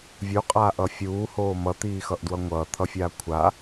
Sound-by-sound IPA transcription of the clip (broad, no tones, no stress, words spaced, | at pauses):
vʲuqʼaː ʔʌfʲuːhoː mʌt̪iːxʌʔdwʌ ŋʷʌːt̪ʰʌfʲaː kʷʰa